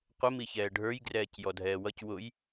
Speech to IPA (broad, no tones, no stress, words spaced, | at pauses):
qʷə miçɛːɖʱə˞j ɡrɛːcjɔdʱɛːwʌc wʊj